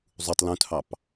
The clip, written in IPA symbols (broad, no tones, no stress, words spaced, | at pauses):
zˤutˤ lũtʰɑp